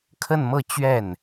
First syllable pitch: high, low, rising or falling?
falling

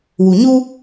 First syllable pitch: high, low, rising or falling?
low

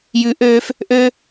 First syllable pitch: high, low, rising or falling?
rising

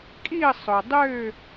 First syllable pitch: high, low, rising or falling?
falling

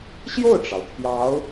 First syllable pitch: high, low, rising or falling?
falling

